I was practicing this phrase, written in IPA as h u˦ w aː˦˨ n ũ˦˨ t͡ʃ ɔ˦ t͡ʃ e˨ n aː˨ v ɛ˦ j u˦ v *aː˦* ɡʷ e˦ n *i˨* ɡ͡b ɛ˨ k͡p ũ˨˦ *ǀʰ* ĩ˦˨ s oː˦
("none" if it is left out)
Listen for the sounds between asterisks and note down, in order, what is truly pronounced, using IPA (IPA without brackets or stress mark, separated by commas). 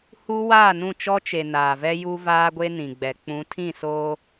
aː˦, ĩ˨, tʰ